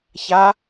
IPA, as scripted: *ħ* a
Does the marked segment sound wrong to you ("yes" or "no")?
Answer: yes